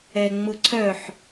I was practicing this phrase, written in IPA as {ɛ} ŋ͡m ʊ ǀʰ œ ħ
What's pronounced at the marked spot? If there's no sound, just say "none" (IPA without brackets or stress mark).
ɛ